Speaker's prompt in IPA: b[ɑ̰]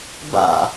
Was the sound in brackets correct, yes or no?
no